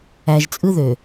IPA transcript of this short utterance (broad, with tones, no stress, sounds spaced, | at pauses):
æ˨ ʒ t͡sʼ ɯ˦ ð ø˨